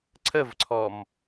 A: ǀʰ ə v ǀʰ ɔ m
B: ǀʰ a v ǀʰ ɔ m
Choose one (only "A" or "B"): A